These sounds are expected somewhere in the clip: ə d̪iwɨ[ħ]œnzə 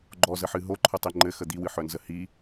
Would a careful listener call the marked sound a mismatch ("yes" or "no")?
no